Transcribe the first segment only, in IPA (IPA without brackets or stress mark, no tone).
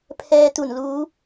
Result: pʰ